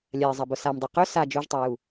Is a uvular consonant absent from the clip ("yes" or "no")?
no